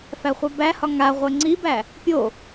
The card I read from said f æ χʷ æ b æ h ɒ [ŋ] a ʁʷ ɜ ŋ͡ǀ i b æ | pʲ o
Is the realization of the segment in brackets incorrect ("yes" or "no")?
no